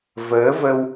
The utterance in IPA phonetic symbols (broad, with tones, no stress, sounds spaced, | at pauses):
v əː˨˦ v ə˧ w